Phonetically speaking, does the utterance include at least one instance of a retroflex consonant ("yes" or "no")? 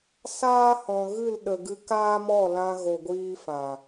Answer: no